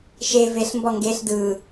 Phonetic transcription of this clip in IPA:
ʃ e v e ɬ m b ɔ ŋ ɡ e ɬ d ɯ

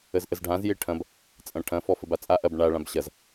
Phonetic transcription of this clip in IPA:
ə z ʔ ə z ɖʱ ã z j e ʈʰ ɐ̃ b | t͡sʼ ɐ̃ ʈʰ ɐ̃ f ɔ f ə b a t͡sʼ a ʔ ɐ b ɳ a ɭ ã b ɕ ɐ z

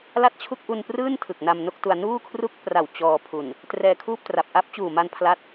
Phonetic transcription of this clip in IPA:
l a˥˩ t̚ t͡ɕʰ u˥˩ k̚ ʔ u˧ n p r ɯː˥˩ n tʰ ɯ˨˩ k̚ n a˧ m n o˥˩ k̚ t u˧ a̯ n uː˥˩ kʰ r u˥˩ k̚ p r a˨˩ w t͡ɕ ɔː˧ pʰ u˨˩ n | t r ɛː˧ kʰ uː˥˩ p̚ t r a˨˩ p̚ ʔ a˦˥ p̚ t͡ɕ uː˨˩ m a˧ n pʰ l a˥˩ t̚

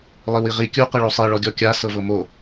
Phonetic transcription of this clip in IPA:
lˠ i w i ʁ i kʲ u q ɯ ɭ o sˤ i ɭ ɔ ɡʲ ɔ kʲ a s ɤ v ɤ m o

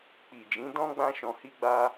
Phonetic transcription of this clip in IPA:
k͡p i˨ d͡ʒ ĩ˨˦ d ɔ̃˦ ɡ͡b ã˦ ʃ ɔ̃˧ h i˦ ɡ͡b a˦

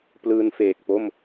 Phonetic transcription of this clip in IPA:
p l ɯː˧ n f eː˨˩ k̚ p o˥˩ m

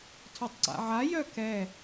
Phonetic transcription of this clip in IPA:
tʰ œ tˤ ǀ a̰ ʕ a j œ k ɛ

